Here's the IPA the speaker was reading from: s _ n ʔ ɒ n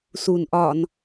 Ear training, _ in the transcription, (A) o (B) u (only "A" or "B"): B